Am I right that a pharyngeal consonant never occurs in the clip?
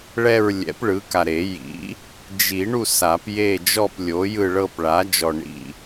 yes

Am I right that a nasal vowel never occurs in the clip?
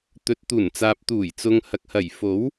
yes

